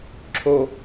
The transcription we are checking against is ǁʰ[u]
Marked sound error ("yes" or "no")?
yes